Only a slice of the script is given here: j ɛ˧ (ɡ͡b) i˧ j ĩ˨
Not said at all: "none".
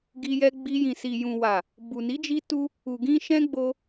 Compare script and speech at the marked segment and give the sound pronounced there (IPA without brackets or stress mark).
ɡ͡b